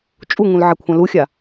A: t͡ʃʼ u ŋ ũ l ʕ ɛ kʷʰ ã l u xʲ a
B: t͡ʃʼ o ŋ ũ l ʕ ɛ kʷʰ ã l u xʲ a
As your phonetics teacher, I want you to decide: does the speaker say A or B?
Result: A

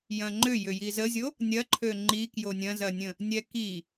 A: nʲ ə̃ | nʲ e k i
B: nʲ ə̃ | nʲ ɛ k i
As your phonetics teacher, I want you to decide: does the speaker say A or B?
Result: B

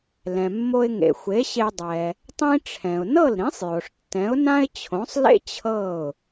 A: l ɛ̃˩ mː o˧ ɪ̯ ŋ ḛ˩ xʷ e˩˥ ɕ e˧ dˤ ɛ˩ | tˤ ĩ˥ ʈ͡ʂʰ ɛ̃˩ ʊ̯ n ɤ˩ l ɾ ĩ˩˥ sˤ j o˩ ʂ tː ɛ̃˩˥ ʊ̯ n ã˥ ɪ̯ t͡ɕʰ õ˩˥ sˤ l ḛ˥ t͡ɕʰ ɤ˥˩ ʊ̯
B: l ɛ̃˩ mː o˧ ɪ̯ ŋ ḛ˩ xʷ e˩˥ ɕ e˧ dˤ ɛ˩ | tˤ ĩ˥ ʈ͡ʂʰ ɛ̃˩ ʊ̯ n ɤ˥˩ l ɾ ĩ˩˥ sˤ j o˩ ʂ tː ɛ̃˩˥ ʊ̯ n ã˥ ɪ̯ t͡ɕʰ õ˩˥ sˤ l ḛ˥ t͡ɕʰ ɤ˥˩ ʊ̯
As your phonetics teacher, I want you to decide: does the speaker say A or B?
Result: B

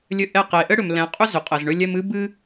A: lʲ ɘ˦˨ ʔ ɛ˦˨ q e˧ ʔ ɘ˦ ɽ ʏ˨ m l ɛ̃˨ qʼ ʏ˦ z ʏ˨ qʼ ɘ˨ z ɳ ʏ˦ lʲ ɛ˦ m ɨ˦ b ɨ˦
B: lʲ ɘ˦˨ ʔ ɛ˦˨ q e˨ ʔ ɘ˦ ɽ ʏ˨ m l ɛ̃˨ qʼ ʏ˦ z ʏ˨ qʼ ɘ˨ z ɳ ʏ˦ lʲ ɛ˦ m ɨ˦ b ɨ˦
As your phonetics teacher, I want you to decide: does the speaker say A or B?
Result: B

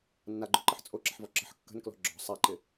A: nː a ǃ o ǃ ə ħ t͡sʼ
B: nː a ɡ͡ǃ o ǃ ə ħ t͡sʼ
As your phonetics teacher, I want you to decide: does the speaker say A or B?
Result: B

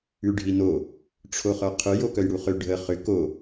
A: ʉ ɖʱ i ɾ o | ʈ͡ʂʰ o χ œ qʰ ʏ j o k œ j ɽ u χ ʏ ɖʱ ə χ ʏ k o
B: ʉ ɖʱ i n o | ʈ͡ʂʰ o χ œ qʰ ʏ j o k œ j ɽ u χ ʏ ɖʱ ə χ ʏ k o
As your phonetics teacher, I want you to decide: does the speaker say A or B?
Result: B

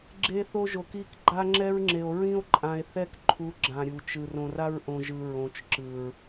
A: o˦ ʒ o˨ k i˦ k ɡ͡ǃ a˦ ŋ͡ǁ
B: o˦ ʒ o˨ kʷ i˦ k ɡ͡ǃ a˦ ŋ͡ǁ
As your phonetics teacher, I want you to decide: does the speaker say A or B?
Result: A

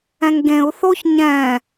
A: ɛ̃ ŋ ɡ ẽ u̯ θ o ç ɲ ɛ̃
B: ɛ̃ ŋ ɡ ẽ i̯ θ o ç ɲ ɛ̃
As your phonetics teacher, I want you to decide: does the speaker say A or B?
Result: A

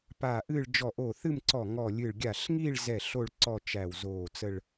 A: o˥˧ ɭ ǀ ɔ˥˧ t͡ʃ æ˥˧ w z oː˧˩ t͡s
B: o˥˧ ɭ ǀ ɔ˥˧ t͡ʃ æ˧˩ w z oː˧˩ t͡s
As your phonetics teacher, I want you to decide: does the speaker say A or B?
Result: B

